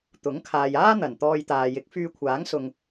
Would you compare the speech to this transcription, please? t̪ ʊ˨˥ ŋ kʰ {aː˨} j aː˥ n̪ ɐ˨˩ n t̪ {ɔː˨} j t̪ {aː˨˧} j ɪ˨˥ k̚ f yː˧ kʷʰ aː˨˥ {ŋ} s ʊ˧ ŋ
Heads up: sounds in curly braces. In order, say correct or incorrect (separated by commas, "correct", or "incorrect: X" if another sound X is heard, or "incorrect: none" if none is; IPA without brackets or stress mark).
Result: correct, incorrect: ɔː˧, incorrect: aː˨, correct